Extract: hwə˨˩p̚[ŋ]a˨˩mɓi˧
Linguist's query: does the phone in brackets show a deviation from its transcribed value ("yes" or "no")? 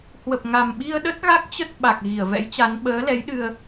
no